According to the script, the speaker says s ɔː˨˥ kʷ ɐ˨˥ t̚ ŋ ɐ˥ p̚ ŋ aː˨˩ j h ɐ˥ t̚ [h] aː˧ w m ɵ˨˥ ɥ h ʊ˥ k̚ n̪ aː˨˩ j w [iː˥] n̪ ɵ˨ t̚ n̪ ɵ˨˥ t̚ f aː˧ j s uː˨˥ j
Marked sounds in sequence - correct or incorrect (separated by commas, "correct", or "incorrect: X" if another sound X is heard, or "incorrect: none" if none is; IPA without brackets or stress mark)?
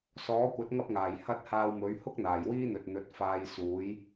correct, correct